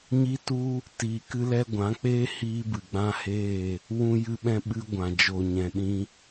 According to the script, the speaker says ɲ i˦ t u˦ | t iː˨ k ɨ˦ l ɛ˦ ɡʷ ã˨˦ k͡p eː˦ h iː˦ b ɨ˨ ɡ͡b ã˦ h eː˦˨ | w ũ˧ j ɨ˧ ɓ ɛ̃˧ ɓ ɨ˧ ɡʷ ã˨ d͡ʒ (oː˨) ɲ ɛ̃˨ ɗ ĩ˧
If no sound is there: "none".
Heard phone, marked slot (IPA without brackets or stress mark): oː˨